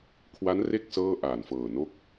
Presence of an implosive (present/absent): absent